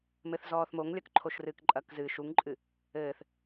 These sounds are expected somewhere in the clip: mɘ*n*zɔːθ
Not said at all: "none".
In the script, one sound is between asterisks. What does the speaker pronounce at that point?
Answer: θ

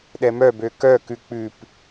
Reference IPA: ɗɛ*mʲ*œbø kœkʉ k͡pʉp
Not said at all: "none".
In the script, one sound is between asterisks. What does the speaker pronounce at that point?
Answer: m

